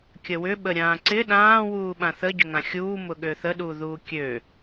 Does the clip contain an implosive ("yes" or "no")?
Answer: yes